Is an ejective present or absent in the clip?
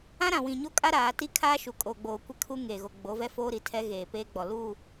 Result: present